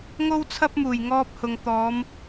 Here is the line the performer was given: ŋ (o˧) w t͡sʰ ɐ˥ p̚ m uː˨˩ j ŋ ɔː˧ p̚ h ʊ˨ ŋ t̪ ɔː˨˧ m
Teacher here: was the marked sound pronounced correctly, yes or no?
no